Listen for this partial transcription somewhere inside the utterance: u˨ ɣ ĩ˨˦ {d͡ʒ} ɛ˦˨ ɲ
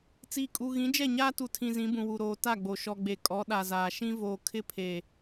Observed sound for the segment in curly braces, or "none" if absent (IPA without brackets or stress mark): d͡ʒ